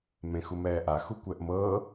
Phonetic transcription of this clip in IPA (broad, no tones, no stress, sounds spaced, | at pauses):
m ẽ x u m ɛː ʔ a x u kʷ ɛ ʔ m ɤː